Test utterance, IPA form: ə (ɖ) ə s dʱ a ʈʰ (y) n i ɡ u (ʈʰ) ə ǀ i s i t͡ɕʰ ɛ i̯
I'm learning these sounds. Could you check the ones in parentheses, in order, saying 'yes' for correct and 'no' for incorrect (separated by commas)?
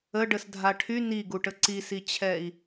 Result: yes, yes, no